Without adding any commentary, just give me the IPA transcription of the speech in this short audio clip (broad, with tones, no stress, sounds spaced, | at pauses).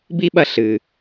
b i˦ ɓ ɐ˧ ɬ ɨ˨